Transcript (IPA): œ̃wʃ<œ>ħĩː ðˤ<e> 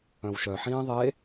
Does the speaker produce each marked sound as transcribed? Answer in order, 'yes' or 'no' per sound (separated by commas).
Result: yes, yes